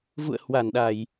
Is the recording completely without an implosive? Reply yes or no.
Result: no